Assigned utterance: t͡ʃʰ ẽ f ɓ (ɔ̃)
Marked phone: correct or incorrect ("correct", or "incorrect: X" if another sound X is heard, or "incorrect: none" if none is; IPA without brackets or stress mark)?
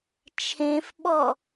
incorrect: ɔ